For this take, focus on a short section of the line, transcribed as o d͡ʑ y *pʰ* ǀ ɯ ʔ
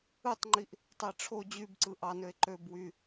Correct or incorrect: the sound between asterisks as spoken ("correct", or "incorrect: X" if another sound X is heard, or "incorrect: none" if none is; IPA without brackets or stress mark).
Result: incorrect: b